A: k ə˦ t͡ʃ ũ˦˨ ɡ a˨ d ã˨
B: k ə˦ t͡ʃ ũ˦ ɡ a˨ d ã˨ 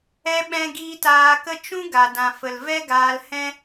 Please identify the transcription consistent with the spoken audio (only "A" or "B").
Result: B